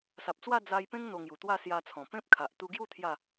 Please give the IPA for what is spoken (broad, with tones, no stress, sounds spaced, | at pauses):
s a˨ p̚ t͡s w a˥˧ d͡z a˧ j p ẽ˦ ŋ n̪ o˧ ŋ j u˨˩ t̪ w a˥˧ s j a˧ t͡sʰ ɔ̃˨˩ p ẽ˦ p̚ kʰ a˨ ʔ t̪ u˧ ɡ j u˥˧ t̪ʰ j a˥˧